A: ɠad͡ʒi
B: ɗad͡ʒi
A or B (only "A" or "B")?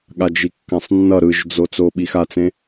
A